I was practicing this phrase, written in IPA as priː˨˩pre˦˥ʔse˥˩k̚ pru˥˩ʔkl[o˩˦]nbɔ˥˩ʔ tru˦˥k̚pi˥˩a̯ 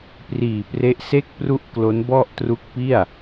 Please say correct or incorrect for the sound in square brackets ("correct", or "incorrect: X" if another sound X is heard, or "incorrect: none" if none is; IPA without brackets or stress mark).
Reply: incorrect: o˦˥